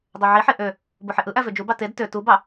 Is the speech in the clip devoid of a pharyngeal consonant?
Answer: no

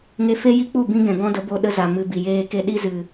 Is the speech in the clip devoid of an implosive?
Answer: no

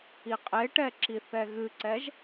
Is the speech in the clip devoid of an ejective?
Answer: no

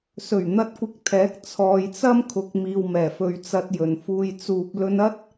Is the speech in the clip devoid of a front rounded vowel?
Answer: yes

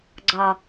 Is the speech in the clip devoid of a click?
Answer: no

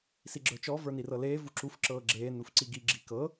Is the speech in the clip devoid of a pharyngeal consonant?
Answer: yes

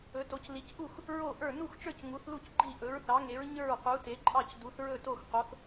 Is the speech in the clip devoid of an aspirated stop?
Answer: yes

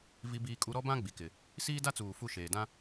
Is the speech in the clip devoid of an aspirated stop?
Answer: yes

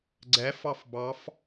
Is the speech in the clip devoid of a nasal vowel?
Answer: yes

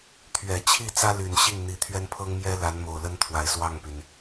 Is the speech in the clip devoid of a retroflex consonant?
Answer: yes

